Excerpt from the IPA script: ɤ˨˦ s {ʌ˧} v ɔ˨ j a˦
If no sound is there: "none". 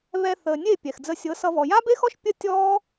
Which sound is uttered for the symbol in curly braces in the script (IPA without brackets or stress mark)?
ʌ˧